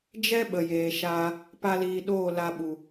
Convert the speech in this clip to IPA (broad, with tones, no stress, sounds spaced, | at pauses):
d͡ʒ ɛ˦ ɓ ə˨ j eː˨ ʃ aː˧ | p a˦ l iː˧ ɗ oː˦˨ l a˧ ɓ u˨